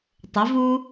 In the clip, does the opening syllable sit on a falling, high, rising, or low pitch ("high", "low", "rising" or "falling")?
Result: rising